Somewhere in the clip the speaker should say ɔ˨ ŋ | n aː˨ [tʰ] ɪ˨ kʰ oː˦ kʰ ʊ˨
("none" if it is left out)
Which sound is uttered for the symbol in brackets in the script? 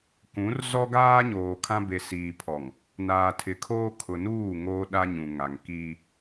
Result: tʰ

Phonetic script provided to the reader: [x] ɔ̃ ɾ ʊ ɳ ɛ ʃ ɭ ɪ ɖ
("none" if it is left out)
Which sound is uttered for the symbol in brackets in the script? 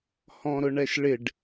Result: h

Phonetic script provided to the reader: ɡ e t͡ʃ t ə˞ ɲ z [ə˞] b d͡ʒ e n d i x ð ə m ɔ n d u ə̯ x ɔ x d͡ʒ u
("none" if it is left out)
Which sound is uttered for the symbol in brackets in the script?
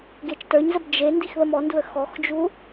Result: ə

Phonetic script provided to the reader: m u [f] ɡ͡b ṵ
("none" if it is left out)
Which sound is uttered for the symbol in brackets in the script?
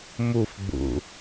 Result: f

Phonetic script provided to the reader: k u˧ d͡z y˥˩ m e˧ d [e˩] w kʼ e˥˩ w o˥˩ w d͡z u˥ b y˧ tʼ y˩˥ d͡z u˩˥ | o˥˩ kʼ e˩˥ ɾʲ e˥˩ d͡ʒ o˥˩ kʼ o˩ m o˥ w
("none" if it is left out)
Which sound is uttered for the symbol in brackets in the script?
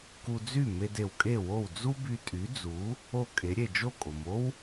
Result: e˩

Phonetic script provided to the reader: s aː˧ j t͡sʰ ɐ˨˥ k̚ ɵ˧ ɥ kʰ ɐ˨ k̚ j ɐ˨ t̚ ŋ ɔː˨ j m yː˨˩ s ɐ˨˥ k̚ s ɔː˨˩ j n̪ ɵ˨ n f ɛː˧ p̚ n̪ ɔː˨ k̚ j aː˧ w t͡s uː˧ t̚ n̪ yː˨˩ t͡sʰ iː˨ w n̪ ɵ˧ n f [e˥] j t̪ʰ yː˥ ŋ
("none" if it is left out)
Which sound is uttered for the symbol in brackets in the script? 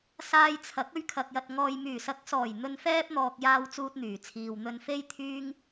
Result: e˥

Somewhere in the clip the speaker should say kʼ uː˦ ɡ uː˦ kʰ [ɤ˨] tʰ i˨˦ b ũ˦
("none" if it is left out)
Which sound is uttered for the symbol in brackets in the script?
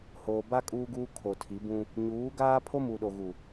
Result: o˨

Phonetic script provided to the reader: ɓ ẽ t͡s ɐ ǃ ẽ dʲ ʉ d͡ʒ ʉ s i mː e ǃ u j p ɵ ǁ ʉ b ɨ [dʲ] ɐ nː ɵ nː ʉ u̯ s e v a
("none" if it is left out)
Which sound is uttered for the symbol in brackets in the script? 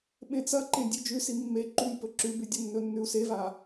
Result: dʲ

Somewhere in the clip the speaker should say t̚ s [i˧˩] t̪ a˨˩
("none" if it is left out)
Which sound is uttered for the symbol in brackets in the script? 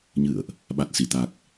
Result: i˧˩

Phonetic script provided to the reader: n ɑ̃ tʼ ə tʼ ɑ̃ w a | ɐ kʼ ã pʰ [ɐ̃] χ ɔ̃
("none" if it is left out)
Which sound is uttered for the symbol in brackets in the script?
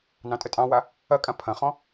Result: ɐ̃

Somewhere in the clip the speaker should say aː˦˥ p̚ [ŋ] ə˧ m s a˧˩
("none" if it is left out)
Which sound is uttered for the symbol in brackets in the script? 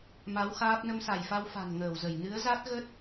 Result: n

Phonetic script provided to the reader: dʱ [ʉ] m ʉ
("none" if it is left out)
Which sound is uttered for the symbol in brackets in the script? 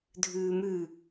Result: ʉː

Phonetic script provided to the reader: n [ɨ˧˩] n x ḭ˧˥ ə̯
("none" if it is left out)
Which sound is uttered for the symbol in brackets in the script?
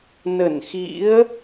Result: ə˧˩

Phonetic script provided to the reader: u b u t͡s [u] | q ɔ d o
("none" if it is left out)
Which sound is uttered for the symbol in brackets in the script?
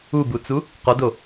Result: u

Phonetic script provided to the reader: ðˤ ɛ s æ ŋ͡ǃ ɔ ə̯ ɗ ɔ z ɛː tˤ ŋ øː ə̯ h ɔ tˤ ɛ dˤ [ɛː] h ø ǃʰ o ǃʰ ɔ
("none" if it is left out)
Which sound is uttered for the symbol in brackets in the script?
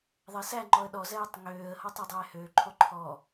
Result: ɛː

